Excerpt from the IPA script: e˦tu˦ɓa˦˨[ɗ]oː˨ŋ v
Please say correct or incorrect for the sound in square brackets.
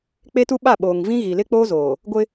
incorrect